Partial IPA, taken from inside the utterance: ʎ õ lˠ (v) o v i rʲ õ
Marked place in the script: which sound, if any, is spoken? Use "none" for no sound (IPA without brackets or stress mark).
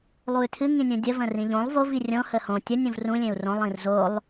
v